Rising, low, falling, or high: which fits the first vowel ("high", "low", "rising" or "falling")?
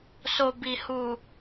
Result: low